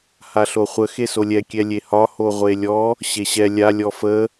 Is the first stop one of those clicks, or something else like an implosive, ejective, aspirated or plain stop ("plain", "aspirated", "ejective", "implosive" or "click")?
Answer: plain